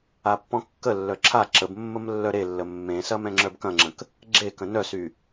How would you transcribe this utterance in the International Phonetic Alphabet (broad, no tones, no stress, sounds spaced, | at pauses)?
a pː ɔ̃ kː ə lː œ ǁʰ a ǁ ə b mː ə m lː œ ɾ e lː ə mː ẽ s ɐ m ɛ̃ ŋ͡ǁ œ b k ɐ̃ ŋ͡ǁ ə̃ k | ɡ͡ǁ e k ə̃ n œ s y